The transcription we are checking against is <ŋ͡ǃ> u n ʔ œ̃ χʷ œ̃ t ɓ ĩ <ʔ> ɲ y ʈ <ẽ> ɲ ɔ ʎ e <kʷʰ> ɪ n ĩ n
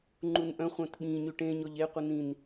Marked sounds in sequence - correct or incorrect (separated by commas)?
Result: correct, incorrect, correct, incorrect